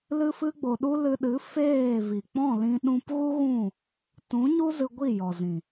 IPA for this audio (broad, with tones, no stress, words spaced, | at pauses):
lɨ˦fɨ˦ɡ͡bo˧ɗu˦ lɨ˧ɗɨ˨˦ feː˦˨vi˨ k͡pɔ̃˦˨lĩ˧ ɗũ˧pɣu˦ɣũ˦˨ | tũ˨˦ɲu˦ zɨ˧ɡʷi˦˨ jɔ˨zĩ˨